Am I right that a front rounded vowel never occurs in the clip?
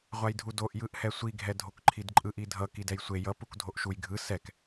yes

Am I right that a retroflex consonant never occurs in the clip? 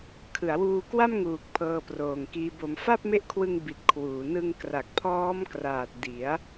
yes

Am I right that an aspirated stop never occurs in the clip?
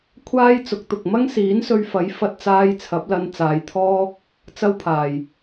no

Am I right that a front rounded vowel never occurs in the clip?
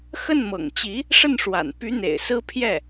no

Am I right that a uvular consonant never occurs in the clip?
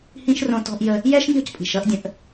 yes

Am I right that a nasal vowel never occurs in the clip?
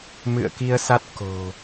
yes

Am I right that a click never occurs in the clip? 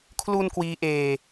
yes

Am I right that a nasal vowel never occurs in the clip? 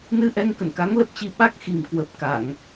yes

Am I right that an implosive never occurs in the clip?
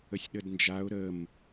no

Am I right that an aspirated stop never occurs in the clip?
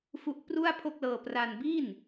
no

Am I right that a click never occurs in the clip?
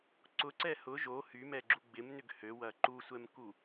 no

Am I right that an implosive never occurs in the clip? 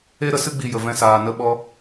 no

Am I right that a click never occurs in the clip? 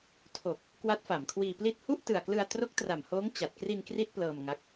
yes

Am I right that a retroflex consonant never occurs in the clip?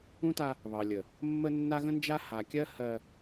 yes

